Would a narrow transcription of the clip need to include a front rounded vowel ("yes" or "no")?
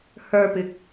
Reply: yes